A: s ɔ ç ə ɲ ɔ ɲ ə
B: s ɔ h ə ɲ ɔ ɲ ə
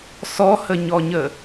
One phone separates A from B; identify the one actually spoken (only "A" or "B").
B